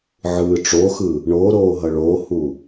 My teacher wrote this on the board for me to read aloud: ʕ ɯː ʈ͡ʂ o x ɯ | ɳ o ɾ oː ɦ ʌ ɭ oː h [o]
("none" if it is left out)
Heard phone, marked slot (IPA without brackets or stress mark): u